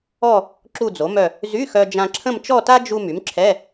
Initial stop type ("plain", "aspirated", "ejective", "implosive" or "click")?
click